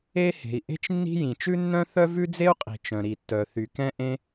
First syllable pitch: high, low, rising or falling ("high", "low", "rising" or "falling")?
high